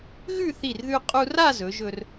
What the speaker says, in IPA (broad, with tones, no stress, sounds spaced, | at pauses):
ɣ ʉ˥˧ θ i˧˩ r ð ʉ˧ qʼ u˧ r a˥˧ z ɵ˩˧ ʒ ɵ˧ r